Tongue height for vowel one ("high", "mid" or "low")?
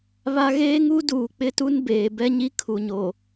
low